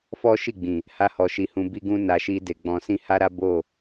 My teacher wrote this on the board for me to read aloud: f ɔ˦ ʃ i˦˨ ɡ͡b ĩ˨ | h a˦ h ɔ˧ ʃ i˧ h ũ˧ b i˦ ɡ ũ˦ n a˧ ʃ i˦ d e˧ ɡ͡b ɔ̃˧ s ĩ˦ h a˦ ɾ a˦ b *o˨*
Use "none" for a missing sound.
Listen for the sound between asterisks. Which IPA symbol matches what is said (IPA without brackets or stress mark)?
o˦˨